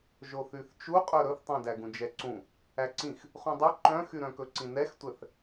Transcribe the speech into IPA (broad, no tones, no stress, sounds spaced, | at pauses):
ʒ o θ y θ t͡ʃ u qʼ ɵ ɾ ɵ θ tˤ æ̃ d æ ɡ ũ d͡ʒ ɛ ǀ ũ | æ ǀ ĩ x | χ ũ dˤ ʉ ǃ œ̃ x y ɾ œ̃ k ɵ ǀ ĩ n ɛ x tʷ ɛ θ